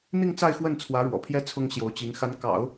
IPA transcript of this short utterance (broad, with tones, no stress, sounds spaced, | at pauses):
n̪ i˥˧ ŋ t͡s a˥˧ ɪ̯ x w ə˥˩ n t͡sʰ w ä˧˥ ɻ w ɔ̰˨˩ pʰ j ɛ˥ t͡sʰ ʊ˥ ŋ ɕ j o˧˥ ʊ̯ t͡ɕ i˧˥ ŋ x a˧˥ n k ɑ̰˨˩˦ ʊ̯